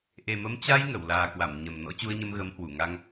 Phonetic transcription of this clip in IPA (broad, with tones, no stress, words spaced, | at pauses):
ʔe˨˩mə˨˦m t͡ɕa˧j ŋə˧˩wlaː˨˩kwa˧˩m ɲə˨˩m nɔ̰˧˥t͡ɕu˧ə̯ɲə˧m ɣə˨˦mhwu˧˩ŋa˧ŋ